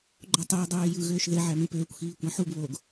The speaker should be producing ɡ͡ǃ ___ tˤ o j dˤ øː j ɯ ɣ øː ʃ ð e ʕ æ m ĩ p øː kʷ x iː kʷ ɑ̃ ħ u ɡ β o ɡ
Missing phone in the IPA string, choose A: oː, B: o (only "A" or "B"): B